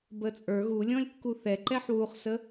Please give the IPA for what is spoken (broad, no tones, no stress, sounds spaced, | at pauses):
b əː t͡sʼ ə˞ ɣ u lʲ ɔ̃ lʲ kː u θ ɛ ǃ ɛ ħ w u χ s ə